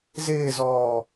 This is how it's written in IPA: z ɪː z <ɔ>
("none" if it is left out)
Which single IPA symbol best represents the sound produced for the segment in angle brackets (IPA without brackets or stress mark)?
ɔː